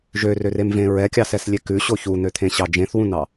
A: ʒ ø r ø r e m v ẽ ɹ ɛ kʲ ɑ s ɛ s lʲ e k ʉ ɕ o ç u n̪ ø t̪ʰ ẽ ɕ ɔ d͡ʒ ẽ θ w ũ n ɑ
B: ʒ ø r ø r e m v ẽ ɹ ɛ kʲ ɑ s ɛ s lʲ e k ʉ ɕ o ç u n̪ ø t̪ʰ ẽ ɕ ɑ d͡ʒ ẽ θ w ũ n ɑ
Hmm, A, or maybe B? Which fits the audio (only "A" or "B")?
B